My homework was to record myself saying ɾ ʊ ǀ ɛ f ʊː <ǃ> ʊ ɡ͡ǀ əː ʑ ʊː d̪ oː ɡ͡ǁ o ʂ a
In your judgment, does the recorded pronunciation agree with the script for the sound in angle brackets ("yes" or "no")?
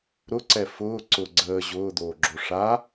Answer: no